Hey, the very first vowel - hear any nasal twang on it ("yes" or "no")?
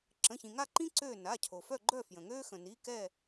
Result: yes